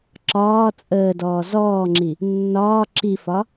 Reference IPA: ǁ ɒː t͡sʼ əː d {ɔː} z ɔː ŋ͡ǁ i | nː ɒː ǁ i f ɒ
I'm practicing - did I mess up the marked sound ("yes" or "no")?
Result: no